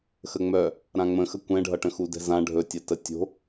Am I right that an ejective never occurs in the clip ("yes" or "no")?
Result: yes